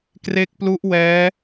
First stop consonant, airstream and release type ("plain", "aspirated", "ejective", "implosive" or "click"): plain